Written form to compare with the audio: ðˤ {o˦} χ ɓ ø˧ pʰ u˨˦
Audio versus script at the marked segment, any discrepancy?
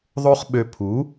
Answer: no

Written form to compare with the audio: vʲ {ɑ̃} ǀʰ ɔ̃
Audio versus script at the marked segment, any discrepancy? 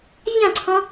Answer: no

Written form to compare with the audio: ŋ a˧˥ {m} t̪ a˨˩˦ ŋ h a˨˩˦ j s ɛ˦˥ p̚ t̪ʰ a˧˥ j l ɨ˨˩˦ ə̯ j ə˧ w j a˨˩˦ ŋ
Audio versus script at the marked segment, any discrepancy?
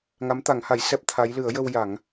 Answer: no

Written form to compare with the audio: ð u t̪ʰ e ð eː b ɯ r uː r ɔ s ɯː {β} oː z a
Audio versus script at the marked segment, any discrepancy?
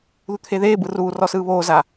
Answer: no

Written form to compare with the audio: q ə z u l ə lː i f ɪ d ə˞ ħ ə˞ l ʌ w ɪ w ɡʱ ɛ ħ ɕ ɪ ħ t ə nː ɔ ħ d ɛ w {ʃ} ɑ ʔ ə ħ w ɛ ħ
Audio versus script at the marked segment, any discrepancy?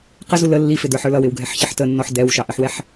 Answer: no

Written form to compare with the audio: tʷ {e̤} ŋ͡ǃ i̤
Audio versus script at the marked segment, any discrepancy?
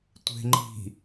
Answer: no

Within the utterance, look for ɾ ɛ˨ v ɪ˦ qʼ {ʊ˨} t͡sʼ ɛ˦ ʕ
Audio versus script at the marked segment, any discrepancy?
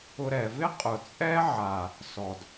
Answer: no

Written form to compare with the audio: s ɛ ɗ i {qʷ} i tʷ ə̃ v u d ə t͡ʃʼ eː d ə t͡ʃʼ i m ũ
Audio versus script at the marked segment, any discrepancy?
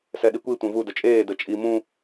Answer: yes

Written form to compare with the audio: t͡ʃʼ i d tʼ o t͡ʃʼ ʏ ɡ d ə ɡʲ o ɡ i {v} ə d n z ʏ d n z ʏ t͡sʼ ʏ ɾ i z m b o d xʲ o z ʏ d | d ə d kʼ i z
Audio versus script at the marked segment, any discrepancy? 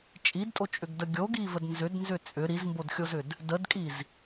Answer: no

